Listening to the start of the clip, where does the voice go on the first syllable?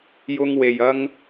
high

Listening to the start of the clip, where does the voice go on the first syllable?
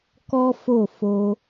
high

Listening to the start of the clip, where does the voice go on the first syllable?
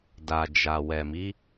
low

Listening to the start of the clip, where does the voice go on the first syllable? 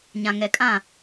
low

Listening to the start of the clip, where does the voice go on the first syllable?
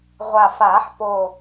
low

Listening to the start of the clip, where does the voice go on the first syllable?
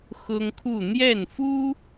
high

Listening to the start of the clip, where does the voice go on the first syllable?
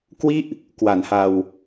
falling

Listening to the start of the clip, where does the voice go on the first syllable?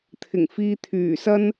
low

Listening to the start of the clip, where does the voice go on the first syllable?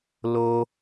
high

